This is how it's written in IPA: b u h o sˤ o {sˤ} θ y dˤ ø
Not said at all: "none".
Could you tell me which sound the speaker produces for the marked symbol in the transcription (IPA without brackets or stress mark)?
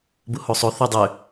none